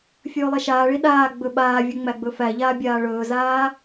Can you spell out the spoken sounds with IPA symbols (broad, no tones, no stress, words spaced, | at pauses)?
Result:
fʲɵːlˠɛʃaːɭi ɗaː ɡ͡bɵɓaːvʲɵ ŋ͡mæɡ͡bɵfæʎaː bʲaːɭɵːzaː